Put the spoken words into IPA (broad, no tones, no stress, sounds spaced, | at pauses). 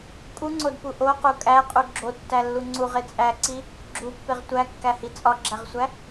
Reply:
kʼ u ŋ͡ǀ o d p u ʔ o q u kʼ æ qʼ u ɡ͡ǁ o tː æ lː u ŋ͡ǀ u ʁ e t͡sʼ æ ǀ i | ɡ͡ǁ u pː e ʁ tʷ æ kː æ h i t͡sʼ ɒ ɡ͡ǁ æ ʁ sʷ æ